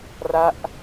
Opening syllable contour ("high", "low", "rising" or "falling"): falling